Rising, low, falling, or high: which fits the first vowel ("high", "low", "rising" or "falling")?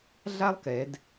high